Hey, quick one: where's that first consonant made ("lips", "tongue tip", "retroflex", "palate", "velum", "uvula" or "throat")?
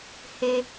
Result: throat